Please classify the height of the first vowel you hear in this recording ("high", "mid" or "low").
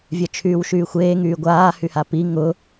mid